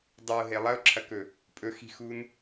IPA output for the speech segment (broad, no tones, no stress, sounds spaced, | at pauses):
dˤ ʉ ʊ̯ ɦ e lˠ ɐ ʊ̯ ǁʰ ɐ k ɵ | pʼ ɵ x i̤ x u n